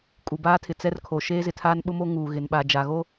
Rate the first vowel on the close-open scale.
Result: close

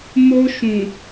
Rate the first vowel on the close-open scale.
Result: mid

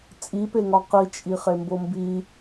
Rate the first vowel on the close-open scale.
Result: close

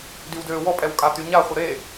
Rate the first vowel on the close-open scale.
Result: close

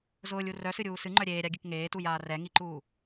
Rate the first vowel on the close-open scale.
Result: close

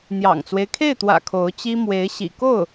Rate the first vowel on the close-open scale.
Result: open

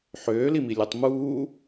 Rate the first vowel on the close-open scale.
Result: mid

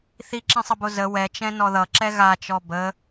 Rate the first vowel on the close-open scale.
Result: close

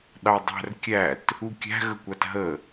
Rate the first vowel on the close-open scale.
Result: open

